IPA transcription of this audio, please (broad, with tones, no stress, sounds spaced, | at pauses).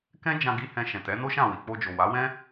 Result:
k ɛ̃˦ d͡ʒ ã˧ ɡ i˧ h ɛ̃˧ ʃ ɛ̃˨ t ɛ˨˦ n o˦ ʃ ã˦˨ w i˨ k͡p o˧ d͡ʒ o˨ w a˨˦ w ɛ̃˦